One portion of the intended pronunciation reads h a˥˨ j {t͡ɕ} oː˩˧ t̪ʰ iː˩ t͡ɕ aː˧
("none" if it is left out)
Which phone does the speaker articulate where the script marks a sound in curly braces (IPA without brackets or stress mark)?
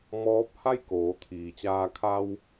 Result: k